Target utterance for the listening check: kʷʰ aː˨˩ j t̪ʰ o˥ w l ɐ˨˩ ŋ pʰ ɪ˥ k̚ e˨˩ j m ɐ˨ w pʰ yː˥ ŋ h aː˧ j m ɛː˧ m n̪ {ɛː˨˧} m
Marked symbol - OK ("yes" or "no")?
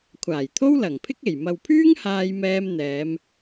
yes